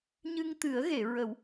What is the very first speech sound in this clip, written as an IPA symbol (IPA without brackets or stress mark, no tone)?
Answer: ɲ